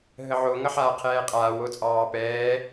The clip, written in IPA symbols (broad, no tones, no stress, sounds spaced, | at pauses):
ɦ ə ʕ o ŋ ʌ ħ aː qʰ ɛː qʼ aː w o t͡sʼ ɑː p ɛː